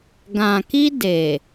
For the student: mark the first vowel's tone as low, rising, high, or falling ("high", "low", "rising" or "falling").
low